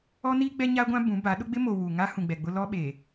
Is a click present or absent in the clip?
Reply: absent